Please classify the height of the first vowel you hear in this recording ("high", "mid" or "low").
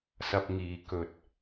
low